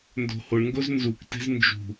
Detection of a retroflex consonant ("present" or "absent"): present